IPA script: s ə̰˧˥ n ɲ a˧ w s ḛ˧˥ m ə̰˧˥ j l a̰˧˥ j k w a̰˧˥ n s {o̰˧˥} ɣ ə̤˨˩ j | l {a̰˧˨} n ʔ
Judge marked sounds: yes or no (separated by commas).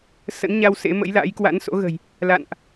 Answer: yes, yes